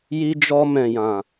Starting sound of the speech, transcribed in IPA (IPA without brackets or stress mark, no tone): j